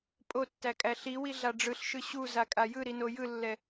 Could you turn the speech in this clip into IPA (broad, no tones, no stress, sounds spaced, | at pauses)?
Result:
pʼ o tː æ kʼ æ ɬ i w i ɮ a ɖ͡ʐ ɯ ɬ ʃ ɯ ɕ u z a kʼ a j ɯ ɾ i n o j ɯ lː ɛ